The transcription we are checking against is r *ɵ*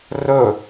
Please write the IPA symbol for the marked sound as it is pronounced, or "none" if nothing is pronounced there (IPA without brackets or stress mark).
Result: ɵ